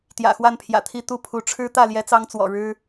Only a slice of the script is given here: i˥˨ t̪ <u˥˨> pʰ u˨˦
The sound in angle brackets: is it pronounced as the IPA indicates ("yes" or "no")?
yes